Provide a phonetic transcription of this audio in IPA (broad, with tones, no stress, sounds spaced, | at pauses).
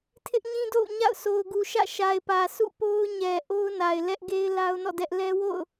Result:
tʰ ɪ˦ ʔ ɲ ĩ˦ d o̰˦˨ ʊ̯ ɲ a̰˦˨ ʊ̯ sʰ o˨ ʊ̯ ɡ u˨ ʃ ä̰˦˨ ʃ a˨ ɪ̯ p ä˨ sʰ ṵ˦˨ p o˦ ʊ̯ ɲ ɛ˨ ʔ o˦ ʊ̯ n a˨ ɪ̯ l ɛ˦ ʔ ɡ e˦ ɪ̯ l a˦ ʊ̯ n ɔ̰˦˨ d ɛ˦ ʔ l ɛ˦ w o̰˦˨ ʊ̯